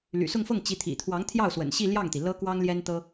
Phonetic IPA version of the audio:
l y̰˨˩ s ʊ˥˧ ŋ f ɤ˥˩ ŋ t͡ɕ i˧˥ t̪ʰ ḭ˨˩ t̪ʰ w ɑ˧˥ ŋ t̪ʰ j ɑ˥˩ ʊ̯ s w ə̰˨˩ n ɕ i˥˧ l j ɑ˥˩ ŋ t̪ i˩ l ɤ˥ k w ɑ˥ ŋ l j ɛ˥ n t̪ ɤ˥

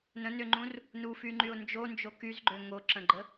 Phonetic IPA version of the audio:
n ə̃ n ʏ ŋ͡ǃ ũ r | n u f y ŋ͡ǃ y ʊ̯ n d͡ʒ o n d͡ʒ o k y z ɡ͡ǃ ø ŋ o ǁ ə̃ ɡ͡ǃ ə

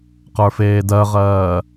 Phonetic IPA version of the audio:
q ə˞ f eː d ɜ ʁ ɜː

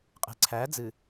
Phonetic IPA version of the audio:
qʼ e̤˨ ǀʰ æː˨˦ d͡z ɨ˨

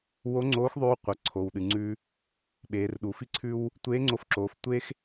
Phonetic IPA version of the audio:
w o˧˥ ŋ͡ǀ oː˧˥ x ðˤ ʉː˧ w qʷ ɐ˩˧ ǀʰ o˩ w ɗ ɨ˩ ŋ͡ǀ ʉː˧ | ɓ eː˩˧ r ɗ u˩ f i˥ ǀʰ ʉ˥ w | tʷ eː˧˥ ŋ͡ǀ o˧ f ǁ oː˩˧ f tʷ e˥ x

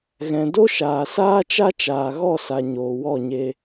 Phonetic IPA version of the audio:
ɣ ɛ̃˨ d o˦ ʃ aː˨ s aː˦ t͡ʃ a˦ t͡ʃ aː˨ ɣ ɔ˦˨ s a˨ ɲ oː˨ w ɔ˦˨ ɲ e˧

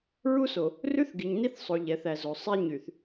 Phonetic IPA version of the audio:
ɹ u˦ s o˨ | r ʉ˦ θ ɡ i˨ ɲ n i˦ θ sˤ o˨ ʎ ɛ˨ θ æ˨ z o˨ sˤ æ˦ ɲ y˨ θ

